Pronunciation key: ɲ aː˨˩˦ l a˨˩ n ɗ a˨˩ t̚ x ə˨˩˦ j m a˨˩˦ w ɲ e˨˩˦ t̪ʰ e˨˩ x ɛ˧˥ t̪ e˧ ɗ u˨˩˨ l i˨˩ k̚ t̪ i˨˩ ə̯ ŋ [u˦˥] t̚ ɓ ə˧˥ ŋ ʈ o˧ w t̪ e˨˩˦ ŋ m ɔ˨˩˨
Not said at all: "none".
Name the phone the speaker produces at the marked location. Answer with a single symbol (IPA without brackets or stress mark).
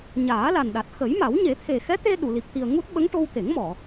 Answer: u˦˥